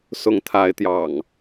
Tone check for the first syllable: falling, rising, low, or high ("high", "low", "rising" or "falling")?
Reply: rising